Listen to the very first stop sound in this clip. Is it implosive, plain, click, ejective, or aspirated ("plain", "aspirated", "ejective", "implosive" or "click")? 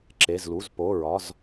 click